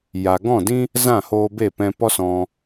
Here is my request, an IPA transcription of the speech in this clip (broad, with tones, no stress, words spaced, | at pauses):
ja˨ɡɔ̃˦˨dĩ˦ | zã˦˨hoː˧be˦˨ pɛ̃˧pɔ˦sɔ̃˧